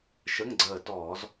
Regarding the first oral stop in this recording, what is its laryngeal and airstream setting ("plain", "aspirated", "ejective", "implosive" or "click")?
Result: click